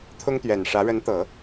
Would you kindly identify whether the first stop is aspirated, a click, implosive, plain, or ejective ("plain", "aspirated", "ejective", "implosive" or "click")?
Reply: aspirated